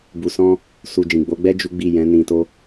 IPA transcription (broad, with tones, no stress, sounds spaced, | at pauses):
b u˨ s ɔ̃˧ | s u˨ d͡ʒ ĩ˨ ɡ͡b o˨˦ ɡ͡b ɛ˦ d͡ʒ u˦ ɡ͡b i˦˨ j ɛ̃˨˦ n ĩ˧ t o˦